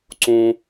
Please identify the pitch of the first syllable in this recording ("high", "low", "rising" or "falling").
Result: high